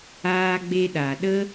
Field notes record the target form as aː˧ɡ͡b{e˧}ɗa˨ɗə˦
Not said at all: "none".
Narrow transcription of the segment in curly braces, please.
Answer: e˧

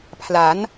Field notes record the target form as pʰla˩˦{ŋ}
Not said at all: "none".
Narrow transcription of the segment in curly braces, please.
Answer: n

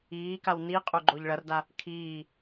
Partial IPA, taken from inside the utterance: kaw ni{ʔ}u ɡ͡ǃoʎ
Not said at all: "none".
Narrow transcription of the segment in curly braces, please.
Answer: qʼ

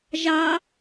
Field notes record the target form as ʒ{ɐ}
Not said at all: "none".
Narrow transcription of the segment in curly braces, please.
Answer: ɑ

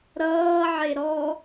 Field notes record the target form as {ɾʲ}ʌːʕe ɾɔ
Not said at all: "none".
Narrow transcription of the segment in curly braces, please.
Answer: ɾ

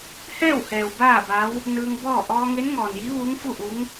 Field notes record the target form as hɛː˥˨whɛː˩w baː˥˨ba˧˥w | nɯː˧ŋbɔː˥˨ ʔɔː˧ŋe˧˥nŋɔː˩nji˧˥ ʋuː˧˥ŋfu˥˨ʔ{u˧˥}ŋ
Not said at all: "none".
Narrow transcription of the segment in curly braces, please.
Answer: u˧˥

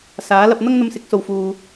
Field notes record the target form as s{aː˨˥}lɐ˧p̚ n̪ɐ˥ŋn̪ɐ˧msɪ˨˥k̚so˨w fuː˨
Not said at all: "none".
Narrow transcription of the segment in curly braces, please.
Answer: aː˨˥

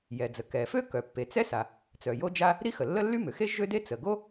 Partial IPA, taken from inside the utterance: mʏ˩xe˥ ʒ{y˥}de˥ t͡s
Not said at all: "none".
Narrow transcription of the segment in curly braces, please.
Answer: ø˥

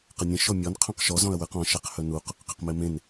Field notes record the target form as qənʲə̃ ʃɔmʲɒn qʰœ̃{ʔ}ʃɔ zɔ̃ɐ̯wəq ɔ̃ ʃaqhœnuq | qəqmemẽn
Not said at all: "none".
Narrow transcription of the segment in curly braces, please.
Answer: q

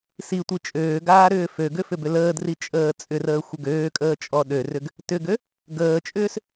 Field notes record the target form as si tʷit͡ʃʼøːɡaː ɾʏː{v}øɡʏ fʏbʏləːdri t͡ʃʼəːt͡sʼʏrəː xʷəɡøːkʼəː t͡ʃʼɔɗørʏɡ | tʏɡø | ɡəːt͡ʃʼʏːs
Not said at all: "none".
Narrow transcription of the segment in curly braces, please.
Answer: f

